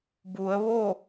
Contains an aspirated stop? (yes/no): no